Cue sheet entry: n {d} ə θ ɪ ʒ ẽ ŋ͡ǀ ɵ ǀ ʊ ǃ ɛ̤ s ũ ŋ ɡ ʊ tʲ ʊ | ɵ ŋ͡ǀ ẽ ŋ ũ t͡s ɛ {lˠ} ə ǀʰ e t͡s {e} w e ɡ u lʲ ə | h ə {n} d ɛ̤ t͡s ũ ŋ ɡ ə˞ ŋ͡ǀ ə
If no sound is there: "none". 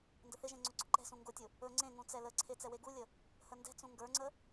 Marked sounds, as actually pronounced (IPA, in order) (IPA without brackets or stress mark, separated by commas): d, l, ɛ, n